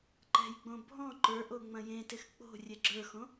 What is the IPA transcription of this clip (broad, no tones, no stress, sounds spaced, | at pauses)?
ǃ ɛ̤ j ɡ͡b õ bʱ ɔ̃ ǃ ə˞ ʔ o ŋ͡m ɐ̃ j ẽ t ɪ x k͡p o̤ rʲ ɛ ɡ͡ǁ ə˞ x õ